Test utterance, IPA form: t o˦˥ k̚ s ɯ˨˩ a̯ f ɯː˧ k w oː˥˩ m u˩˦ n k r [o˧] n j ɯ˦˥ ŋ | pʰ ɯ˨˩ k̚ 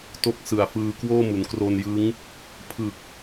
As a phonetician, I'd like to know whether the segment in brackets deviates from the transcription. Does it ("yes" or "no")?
no